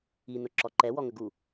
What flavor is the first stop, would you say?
click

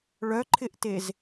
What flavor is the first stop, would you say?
click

